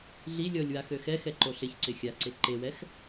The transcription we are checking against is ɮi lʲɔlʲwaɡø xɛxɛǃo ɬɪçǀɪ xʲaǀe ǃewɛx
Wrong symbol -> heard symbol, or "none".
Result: ɡ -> x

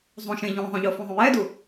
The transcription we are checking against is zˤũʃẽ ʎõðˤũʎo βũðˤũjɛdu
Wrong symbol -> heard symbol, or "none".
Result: β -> f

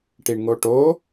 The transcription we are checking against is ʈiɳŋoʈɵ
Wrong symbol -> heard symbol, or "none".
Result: ɵ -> o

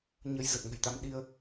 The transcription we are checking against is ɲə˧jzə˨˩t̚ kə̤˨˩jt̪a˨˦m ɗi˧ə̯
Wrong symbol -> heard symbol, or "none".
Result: k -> ŋ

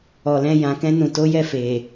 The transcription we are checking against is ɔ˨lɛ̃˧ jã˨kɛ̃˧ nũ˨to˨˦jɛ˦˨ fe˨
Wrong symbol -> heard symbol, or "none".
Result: none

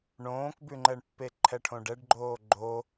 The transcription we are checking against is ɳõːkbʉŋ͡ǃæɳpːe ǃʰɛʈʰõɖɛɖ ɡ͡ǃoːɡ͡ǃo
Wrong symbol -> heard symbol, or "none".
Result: æ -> ɛ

